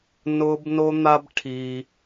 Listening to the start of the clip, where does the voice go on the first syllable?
high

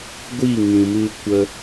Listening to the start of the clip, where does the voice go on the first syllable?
falling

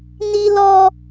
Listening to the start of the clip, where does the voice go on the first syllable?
high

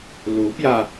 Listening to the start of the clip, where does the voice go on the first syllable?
rising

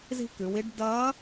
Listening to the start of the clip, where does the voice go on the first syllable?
high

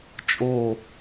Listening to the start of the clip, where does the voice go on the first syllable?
falling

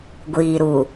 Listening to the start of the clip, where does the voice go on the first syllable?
low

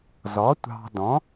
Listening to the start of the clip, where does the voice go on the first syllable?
rising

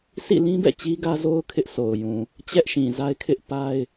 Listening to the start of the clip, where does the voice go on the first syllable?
falling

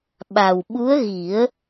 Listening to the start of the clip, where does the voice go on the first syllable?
low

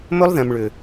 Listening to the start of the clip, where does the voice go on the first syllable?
high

